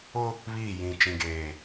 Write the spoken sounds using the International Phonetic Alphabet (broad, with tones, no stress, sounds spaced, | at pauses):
ʊ˦ | β iː˦˨ j ĩ˨ t͡ʃ ĩ˨ ɡ eː˨